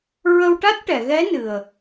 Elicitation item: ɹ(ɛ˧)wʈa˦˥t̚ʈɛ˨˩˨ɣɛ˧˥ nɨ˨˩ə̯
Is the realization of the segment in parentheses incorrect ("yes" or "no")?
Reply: yes